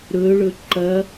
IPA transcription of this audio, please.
ɾ ɵ ɭ ɵ ǃ ɐ

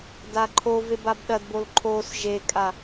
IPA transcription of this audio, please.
d a ǃʰ o v e b a b ɗ ɐ d b o l ǃʰ oː s ʒ e kʼ a

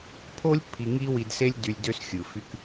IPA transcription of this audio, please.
pʰ o˦ lʲ pʰ i˧ ŋ i˦ w i˧ d s e˦ lʲ d y˧ lʲ d ø˦ s xʲ ɯ˨ f y˦ k

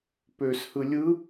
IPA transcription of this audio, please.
p ø s h ɯ lʲ ɯ

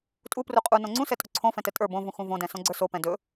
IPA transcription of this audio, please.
tʼ u p r u qʼ u n õ ŋ͡ǀ ũ s ɛ tʼ o ǀʰ õ f ɛ̃ t ɛ tʼ ə˞ b õ v ũ x ũ v õ d ɛ̃ s õ ɡ͡ǀ ə˞ s o p ɛ̃ d ɵ

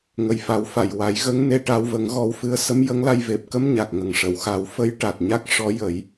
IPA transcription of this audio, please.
ŋ ə˨˩ j f a˨˩˦ w f a˨˩˨ j w a˨˩˦ j ɣ ə˧˥ ŋ n e˧ ʈ a˧ w v ə˨˩˦ ŋ ɣ ɔ˧ w f ɨ˧˥ ə̯ s ə˧˥ m j ə˧˥ ŋ l a˧ j v e˨˩ p̚ k ə˧ m ɲ a˨˩ k̚ ŋ ə˨˩ ŋ ʂ ə˨˩˨ w x a˨˩˦ w f ə˧˥ j ʈ a˨˩ t̚ ɲ a˦˥ k̚ ʂ ɔ˧˥ j ə˨˩˦ j

